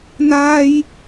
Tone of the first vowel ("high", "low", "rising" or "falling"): high